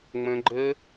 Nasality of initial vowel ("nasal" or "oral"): nasal